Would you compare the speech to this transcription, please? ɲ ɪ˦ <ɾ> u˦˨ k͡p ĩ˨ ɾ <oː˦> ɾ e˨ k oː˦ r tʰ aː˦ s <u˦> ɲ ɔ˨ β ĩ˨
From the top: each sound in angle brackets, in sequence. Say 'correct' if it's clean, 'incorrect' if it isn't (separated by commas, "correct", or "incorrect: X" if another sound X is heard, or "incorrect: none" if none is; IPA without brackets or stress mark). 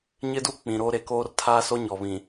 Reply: incorrect: d, correct, incorrect: o˦